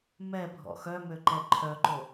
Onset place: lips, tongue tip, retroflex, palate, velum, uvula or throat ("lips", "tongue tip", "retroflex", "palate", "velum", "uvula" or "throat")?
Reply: lips